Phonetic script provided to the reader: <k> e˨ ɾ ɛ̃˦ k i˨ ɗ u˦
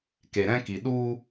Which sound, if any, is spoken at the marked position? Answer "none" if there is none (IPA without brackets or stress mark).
k